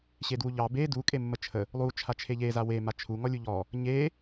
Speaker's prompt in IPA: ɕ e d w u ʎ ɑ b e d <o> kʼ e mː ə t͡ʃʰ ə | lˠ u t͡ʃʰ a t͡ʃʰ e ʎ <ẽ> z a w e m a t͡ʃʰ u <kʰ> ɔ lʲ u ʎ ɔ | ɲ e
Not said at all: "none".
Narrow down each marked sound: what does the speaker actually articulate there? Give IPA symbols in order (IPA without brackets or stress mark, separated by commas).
u, e, ŋ